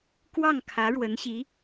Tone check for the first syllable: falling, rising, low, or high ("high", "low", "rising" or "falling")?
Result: falling